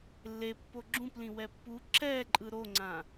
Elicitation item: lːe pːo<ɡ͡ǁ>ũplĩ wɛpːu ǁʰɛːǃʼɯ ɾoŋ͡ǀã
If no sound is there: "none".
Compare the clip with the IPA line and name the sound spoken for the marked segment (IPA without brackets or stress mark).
ɡ͡ǁ